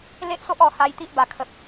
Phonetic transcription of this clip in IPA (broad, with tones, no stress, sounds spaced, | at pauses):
l e˦ ʔ s o˦ ʔ ɔ˧ h a˧ j t̪ i˦ ʔ b a˨˩ kʰ ə˨ p̚